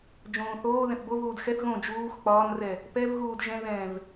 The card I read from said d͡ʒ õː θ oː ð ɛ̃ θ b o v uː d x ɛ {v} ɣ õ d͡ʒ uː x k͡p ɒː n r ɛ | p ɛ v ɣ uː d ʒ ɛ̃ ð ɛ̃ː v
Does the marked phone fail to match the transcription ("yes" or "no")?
yes